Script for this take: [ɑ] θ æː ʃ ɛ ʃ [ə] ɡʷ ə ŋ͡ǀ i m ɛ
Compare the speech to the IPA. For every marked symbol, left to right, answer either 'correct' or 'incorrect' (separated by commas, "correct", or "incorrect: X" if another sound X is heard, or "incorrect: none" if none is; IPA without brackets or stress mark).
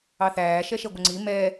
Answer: correct, incorrect: ɛ